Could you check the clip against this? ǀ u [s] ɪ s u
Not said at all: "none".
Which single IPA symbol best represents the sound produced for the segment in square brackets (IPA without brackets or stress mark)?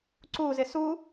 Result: z